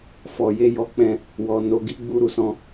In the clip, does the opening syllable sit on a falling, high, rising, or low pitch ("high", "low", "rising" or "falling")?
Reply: low